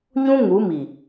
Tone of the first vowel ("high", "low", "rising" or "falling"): high